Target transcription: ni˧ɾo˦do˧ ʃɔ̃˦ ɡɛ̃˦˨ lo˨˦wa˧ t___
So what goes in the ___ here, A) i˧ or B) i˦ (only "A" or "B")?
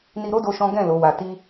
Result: B